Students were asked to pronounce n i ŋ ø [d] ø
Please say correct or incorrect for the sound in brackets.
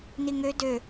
correct